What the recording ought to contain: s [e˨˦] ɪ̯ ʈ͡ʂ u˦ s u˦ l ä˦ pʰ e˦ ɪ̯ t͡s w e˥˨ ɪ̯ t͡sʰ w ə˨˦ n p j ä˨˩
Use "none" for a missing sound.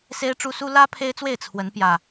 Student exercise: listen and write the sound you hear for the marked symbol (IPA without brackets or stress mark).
e˦